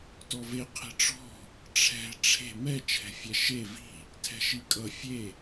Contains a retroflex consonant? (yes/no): yes